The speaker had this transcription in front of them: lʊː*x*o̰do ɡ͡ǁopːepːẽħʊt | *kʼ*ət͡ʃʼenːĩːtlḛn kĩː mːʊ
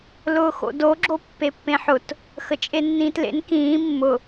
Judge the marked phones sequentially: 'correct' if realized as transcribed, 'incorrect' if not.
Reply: correct, incorrect: x

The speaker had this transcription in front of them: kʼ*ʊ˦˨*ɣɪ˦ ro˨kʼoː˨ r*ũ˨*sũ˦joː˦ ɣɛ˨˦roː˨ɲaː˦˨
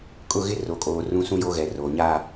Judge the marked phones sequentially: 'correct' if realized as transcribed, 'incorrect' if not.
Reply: correct, incorrect: ũ˦

